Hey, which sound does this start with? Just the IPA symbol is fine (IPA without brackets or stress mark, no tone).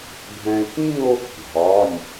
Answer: bʱ